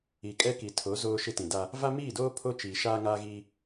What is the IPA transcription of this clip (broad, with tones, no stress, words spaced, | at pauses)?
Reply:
i˨kʼɛ˦ki˨ tʰo˨˦ zoː˦ ʃɪ˦tĩ˨da˦ | va˦miː˦˨doː˦ pʰo˦ t͡ʃiː˨ʃaː˦ ŋaː˦ɣiː˦